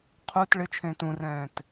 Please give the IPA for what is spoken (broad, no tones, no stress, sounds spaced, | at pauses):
qʰ u t ɭ ɪ t͡ʃʰ ẽː t ũ r ɛ̃ː t